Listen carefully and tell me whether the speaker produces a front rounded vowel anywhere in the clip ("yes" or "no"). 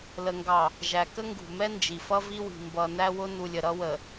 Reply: no